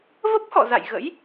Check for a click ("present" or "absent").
absent